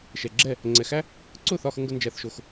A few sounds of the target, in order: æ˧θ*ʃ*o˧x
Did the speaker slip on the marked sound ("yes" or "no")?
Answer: no